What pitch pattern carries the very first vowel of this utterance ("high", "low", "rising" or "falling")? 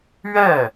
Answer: falling